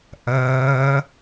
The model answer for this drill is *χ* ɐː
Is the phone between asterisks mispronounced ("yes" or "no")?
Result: yes